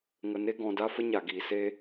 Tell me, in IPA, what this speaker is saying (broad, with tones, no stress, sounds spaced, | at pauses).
ŋ ə˨ n e˧ ɡ ɔ̃˨ d a˧ f ə˦ ɲ a˨ ɡ iː˨ s e˦